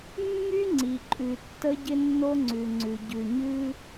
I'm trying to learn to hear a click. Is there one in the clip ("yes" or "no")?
yes